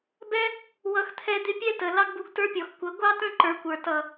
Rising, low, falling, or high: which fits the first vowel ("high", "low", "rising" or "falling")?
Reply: high